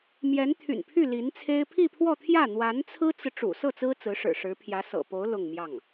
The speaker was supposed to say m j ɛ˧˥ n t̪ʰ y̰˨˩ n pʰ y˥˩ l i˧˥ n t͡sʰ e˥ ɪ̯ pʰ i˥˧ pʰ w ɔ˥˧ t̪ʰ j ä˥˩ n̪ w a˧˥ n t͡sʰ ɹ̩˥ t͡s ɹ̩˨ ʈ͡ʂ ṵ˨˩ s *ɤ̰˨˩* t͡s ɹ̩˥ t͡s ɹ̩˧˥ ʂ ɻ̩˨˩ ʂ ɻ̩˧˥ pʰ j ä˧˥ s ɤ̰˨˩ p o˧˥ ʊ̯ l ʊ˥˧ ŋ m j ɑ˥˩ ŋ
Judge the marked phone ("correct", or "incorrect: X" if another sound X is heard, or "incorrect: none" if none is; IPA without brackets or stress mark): incorrect: ɤ˥˩